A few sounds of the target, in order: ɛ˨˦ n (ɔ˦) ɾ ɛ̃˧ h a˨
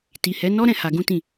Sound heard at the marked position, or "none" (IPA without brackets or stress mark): ɔ˦